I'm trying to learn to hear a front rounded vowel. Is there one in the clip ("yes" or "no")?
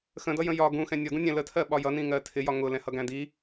no